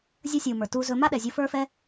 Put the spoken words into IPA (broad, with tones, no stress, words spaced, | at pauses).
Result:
zʲɐ˦sʲu˨mə˞˨ tu˧zɵ˧ ma˦ɗɛ˨zʲɤ˧ fə˞˦fɛ˦